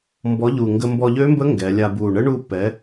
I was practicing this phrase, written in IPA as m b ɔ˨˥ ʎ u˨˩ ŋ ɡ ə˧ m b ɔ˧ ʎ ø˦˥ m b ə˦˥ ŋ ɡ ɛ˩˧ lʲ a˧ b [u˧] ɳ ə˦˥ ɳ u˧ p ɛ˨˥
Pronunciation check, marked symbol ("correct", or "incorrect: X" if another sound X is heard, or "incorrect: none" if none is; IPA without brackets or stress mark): incorrect: u˨˩